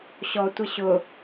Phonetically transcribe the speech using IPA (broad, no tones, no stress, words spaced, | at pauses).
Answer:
ɕɔtʷɪ ɕʊ